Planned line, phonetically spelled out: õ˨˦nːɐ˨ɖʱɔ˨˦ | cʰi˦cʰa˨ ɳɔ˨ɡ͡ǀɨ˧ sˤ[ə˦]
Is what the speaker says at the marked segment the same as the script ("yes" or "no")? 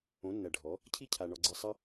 no